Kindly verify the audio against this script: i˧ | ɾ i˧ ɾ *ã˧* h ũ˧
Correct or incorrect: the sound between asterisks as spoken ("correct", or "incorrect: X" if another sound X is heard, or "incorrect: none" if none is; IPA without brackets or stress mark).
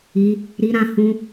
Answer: correct